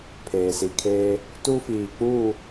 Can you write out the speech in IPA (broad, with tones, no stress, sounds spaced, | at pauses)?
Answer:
pʰ eː˨ s i˨ kʰ eː˦ | t u˦ f iː˨ k͡p u˦˨